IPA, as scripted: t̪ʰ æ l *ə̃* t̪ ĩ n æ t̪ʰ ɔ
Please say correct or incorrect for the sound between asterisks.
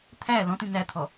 incorrect